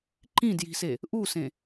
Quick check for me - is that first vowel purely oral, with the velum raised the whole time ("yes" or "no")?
no